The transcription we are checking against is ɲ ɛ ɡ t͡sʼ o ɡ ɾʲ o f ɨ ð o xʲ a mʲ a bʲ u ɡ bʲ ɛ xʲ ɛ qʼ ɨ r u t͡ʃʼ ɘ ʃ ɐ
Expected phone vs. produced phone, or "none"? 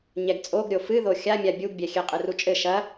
none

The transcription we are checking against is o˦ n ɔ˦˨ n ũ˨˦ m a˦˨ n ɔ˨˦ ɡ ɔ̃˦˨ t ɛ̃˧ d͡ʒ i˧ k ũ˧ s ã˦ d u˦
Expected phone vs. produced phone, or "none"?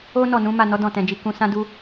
ɡ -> d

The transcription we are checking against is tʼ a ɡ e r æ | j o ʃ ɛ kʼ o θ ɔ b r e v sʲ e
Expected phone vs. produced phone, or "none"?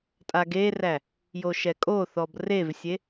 none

